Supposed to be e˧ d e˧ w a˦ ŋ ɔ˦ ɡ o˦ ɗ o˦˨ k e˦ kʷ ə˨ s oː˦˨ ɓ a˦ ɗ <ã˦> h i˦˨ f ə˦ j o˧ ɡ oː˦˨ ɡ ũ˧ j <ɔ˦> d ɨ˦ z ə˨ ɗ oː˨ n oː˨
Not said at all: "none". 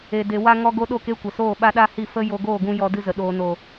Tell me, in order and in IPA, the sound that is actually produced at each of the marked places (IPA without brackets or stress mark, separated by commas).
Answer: a˦, ɔ˧